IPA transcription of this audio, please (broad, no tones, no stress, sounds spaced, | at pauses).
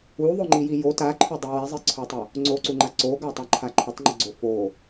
u ðˤ o ŋ͡ǃ i j i j o t a ǃʰ ɵ dˤ u w ɛ zˤ i ǀʰ o tˤ ɵ | ŋ͡ǀ o ǀ u ŋ͡ǃ a ǀ o ɡ a tˤ a ǃʰ a ǃʰ ə tˤ ŋ͡ǃ ə ɡ͡ǀ o f o